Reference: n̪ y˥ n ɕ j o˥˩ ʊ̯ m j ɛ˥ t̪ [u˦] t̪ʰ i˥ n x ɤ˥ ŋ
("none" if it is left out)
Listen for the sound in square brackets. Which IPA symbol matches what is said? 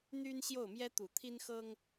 u˨˩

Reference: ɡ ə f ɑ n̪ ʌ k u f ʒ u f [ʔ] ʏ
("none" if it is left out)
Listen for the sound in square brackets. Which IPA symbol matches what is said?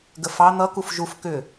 k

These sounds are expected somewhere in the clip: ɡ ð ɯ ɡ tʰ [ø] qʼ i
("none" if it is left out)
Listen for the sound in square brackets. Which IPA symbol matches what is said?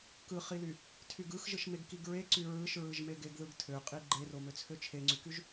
ø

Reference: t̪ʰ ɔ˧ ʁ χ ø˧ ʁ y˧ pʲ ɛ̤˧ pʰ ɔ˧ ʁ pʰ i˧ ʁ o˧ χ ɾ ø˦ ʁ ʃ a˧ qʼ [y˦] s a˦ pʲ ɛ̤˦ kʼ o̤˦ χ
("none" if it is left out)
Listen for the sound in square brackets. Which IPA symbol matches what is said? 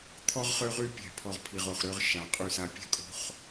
y˦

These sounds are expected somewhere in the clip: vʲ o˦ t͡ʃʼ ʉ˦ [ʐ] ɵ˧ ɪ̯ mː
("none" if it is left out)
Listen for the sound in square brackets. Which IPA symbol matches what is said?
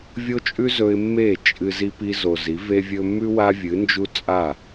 z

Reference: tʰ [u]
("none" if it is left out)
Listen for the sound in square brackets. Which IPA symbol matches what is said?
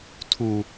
u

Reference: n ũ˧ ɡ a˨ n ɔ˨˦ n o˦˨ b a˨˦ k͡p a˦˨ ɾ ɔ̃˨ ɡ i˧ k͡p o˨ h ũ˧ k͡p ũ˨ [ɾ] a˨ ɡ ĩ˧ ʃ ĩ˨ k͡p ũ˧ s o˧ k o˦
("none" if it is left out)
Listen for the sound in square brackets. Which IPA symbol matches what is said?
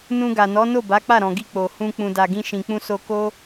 d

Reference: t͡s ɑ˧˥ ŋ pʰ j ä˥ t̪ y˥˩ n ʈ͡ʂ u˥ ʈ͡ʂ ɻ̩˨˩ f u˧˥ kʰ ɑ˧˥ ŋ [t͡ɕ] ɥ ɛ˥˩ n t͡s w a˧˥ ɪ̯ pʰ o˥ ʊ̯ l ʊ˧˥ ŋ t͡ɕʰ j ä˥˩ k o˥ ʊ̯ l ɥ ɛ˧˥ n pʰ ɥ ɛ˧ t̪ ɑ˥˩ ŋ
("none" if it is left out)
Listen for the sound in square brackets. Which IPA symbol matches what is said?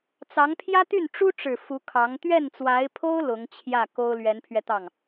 t̪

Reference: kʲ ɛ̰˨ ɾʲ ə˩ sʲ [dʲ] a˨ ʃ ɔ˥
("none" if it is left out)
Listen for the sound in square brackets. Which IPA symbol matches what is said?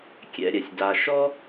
d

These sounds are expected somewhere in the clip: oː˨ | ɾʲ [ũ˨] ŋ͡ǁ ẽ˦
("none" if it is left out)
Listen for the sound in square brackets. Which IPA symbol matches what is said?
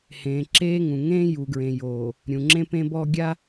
ũ˨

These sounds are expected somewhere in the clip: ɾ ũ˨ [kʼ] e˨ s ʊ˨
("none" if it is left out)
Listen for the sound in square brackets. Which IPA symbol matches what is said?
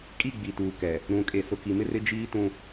kʼ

